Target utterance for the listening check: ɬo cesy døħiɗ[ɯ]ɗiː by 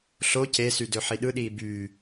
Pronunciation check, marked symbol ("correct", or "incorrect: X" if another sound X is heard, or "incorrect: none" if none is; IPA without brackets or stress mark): correct